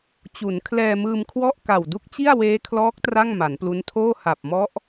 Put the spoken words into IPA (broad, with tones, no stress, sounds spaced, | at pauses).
t͡ɕ u˩˦ n kʰ l ɛː˧ m ɯː˧ m kʰ w ɔ˥˩ ʔ k a˨˩ w d u˦˥ k̚ t͡ɕ i˥˩ a̯ w eː˦˥ kʰ l ɔː˦˥ k̚ t r a˥˩ ŋ m a˩˦ n p l u˦˥ n tʰ oː˥˩ h a˨˩ p̚ m ɔ˦˥ ʔ